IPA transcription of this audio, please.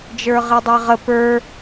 d͡ʒ ə˞ ʁ i dˤ e ʁ ə p ə˞

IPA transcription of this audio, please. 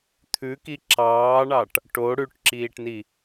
t̪ʰ ʉ k i ǁ ɑː ɳ ɑ ʈ | ʈ o ɽ ʉ ʈ ǁ iː ʈ n i

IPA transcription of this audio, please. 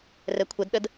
r ɛ kʷʰ ə d ɗ ə d

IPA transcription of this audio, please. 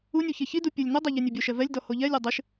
u nʲ u ç e ç i d u pʲ ʊ lʲ n ʊ dˤ e ʎ e nʲ e bʲ o ʃ ɛ v ɛ lʲ d ɔ h o ʎ ɛ lʲ o dˤ ɪ ʃ

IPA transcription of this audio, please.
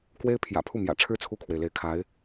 k w e˥ ɪ̯ pʰ j ä̰˨˩ pʰ u˥˩ m j ä̰˨˩ ʈ͡ʂʰ ɻ̩˥ t͡sʰ u˥˩ kʰ w e˩ ɪ̯ l e˧˥ ɪ̯ kʰ a˧˥ ɪ̯

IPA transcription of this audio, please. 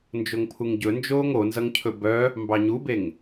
n d͡ʒ o ŋ pʰ u ŋ ɟ ɵ n d͡ʒ oː ŋ o n z ʌ ŋ cʰ ɵ b œ | m b ɑ ɲ u b e ŋ

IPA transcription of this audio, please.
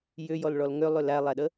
j ʏ j ɔ l ɭ ɔ l ŋ ʏ lˠ ʏ l æ lˠ æ ɗ ə

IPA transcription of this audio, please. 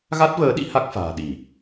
ɣ a˦˥ t̚ v əː˨˦ ɗ ḭ˧˥ h a˦˥ k̚ f a̤ː˨˩ ɗ i˧˩˨

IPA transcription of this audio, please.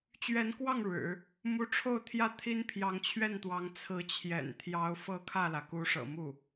t͡ɕ ɥ ɛ˧˥ n k w ɑ˥˩ ŋ ɻ ɻ̩˨˩˦ | m u˧˥ ʈ͡ʂʰ o˥˩ ʊ̯ t̪ʰ j ä˥ t̪ʰ i˥ n pʰ j ɑ˧˥ ŋ t͡ɕʰ ɥ ɛ˥˩ n t̪ w ɑ˧˥ ŋ t͡sʰ ɹ̩˧˥ t͡ɕʰ j ɛ̰˨˩ n t̪ʰ j ɑ˧˥ ʊ̯ f ɤ˥˧ kʰ ä˥˩ l ä˩ k u˧˥ ʂ ɤ̰˨˩ m u˥˩

